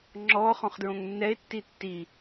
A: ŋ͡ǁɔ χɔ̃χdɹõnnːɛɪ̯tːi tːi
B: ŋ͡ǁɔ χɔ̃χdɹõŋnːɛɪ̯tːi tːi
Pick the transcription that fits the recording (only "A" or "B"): B